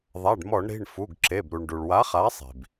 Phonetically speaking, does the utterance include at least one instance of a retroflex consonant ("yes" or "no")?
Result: yes